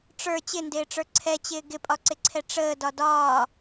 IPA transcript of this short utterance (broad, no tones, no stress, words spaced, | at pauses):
ʈ͡ʂə˞ t͡ɕɪndɪːʈ͡ʂə˞ ǀʰɛt͡ɕɪː ɡɪpʼɒǀɪǀʰɛ ʈ͡ʂəːdɒ dɒː